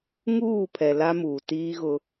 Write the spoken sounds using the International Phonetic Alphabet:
ŋ uː˦˨ pʰ ɛ˨ l a˦ m uː˨ t iː˦ ɣ ʊ˦

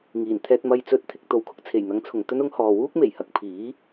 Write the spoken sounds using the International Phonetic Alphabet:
ŋ iː˨˩ n t̪ʰ ɛː˧ t̚ m ɐ˨ j t͡s ɵ˨˥ t̚ t̪ʰ ɪ˨˥ k̚ t̪ o˨ w kʰ ʊ˥ k̚ t͡sʰ e˨˩ j n̪ ɐ˨˥ ŋ t͡sʰ ʊ˨ ŋ t̪ ɵ˥ n ʊ˥ ŋ h ɔː˨ w uː˥ k̚ m e˨˩ j h ɐ˨ k̚ pʰ iː˨˥

